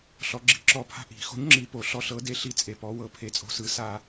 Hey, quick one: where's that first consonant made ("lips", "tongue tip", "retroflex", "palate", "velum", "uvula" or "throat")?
tongue tip